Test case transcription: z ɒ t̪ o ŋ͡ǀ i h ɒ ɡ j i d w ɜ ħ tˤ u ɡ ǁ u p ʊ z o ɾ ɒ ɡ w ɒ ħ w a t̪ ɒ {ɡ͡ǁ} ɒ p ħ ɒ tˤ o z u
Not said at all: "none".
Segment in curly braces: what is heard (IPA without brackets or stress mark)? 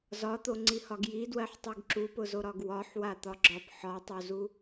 ɡ͡ǁ